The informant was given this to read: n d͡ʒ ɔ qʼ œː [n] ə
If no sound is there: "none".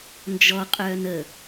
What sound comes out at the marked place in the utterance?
n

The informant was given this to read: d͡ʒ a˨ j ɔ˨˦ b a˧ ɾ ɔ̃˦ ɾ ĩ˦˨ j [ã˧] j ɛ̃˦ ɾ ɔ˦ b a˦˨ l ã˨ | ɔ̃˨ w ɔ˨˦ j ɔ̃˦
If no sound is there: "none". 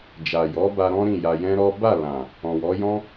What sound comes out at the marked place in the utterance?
a˧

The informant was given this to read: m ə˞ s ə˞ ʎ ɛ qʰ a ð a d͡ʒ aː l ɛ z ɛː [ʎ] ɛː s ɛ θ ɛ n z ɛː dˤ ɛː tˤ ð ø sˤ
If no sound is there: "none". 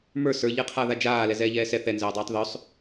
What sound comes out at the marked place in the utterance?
ʎ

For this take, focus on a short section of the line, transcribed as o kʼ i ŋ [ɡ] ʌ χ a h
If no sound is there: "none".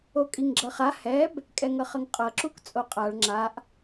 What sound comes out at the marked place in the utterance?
ɡ͡ǁ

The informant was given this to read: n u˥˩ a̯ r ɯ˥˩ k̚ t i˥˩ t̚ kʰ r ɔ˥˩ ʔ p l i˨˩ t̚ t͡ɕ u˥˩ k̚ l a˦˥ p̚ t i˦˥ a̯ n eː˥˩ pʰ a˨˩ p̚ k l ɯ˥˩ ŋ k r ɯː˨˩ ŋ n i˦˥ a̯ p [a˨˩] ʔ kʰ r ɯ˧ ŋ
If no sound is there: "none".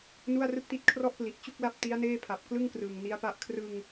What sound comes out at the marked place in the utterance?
a˥˩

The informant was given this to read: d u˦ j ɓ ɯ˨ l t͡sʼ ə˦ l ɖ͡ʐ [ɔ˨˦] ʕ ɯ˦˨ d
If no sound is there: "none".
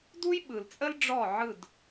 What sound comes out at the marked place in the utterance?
ɔ˦˨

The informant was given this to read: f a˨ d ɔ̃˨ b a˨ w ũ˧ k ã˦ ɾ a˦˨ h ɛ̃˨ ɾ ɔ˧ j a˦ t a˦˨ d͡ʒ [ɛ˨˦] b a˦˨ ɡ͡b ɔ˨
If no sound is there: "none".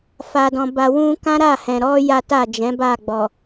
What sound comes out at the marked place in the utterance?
ɛ̃˨˦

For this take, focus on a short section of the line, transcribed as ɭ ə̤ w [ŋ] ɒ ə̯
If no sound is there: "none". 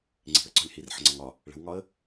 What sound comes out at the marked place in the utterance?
ŋ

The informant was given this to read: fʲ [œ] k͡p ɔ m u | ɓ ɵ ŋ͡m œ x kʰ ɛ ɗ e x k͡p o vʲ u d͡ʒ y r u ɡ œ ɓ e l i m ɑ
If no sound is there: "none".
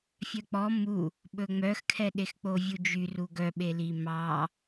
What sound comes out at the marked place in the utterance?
œ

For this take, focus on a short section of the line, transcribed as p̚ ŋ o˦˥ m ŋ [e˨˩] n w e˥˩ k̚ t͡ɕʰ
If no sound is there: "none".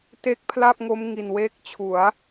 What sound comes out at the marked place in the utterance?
i˨˩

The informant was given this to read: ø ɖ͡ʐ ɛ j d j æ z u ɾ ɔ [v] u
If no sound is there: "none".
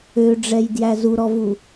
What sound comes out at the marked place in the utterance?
v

